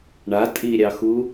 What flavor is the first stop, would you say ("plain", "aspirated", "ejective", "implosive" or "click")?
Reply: ejective